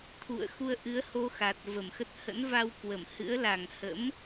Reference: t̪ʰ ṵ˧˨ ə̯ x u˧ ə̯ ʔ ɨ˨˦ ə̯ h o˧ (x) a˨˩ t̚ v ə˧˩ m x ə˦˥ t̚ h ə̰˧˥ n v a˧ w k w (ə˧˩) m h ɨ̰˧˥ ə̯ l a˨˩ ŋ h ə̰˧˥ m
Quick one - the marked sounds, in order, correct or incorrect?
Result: correct, correct

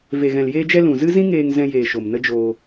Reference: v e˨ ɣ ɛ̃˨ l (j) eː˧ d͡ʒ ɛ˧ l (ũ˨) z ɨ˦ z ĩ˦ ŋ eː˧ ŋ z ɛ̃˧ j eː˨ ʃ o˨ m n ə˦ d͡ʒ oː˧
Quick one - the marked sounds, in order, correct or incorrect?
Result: correct, correct

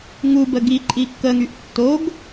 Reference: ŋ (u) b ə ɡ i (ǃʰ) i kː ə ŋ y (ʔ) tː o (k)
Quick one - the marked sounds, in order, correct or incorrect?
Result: correct, incorrect: ǃʼ, correct, incorrect: ɡ

